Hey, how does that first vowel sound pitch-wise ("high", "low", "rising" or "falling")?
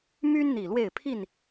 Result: high